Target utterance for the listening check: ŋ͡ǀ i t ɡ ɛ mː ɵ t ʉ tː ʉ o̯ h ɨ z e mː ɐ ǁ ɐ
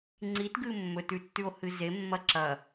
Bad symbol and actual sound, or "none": ɛ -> ɨ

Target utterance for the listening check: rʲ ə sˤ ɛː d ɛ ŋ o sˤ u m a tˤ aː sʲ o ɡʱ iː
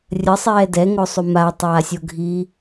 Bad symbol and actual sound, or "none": none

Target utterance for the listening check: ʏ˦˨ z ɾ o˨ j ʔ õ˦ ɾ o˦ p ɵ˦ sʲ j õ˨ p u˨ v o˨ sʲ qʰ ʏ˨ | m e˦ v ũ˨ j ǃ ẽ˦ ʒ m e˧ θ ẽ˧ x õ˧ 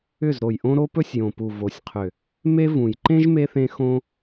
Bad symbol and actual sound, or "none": none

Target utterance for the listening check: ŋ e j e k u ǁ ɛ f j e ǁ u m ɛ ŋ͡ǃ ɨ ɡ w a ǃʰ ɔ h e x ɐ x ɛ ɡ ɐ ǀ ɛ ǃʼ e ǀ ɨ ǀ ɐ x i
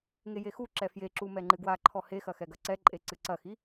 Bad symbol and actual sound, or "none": k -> x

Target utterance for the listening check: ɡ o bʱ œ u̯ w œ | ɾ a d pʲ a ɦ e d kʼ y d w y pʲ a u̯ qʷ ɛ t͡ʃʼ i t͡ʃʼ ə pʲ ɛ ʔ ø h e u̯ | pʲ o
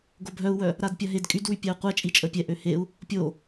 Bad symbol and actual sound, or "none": none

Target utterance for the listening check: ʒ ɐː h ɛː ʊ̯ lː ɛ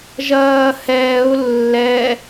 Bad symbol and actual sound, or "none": none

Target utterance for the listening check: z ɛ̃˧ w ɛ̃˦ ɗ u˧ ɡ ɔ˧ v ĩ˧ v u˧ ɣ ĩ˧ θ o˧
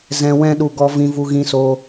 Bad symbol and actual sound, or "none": θ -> s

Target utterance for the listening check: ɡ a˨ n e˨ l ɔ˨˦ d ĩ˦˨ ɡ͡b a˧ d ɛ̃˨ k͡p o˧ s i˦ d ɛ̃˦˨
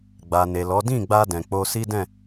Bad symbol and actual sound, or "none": ɡ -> ɡ͡b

